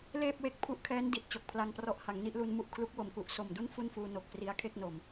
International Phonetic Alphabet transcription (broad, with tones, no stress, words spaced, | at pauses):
leː˥˩p̚we˦˥k̚ pʰu˦˥ʔkʰɛː˦˥n di˨˩t̚ t͡ɕo˨˩k̚pʰla˧ŋprɔ˦˥ʔ ha˩˦ŋni˥˩ʔlu˧n mu˦˥ʔkʰlu˦˥k̚wo˨˩mku˨˩ʔ so˨˩mdu˥˩n fu˥˩nfuː˧no˨˩k̚ pri˦˥a̯kʰe˥˩k̚no˨˩m